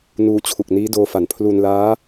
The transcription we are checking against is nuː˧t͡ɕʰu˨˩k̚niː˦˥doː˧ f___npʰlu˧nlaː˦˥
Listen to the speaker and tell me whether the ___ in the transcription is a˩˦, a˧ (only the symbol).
a˩˦